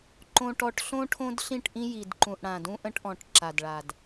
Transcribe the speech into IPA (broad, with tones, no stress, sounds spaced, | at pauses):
ǃ õ˦ ʈ ɔ˦ ʈ ɬ õ˦ ʈʰ õ˦ d ɬ ĩ˦˨ ʈ ʔ ĩ˦ j i˨ d ǃ ũ˨ ʔ ɽ ã˨ d ũ˦ ʔ ə̃˦ ʈ ʔ ɔ̃˨ ʈ ǁ a˨ d ɭ a˨ d